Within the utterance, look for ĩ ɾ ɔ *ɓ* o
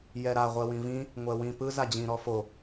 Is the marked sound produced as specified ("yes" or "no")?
no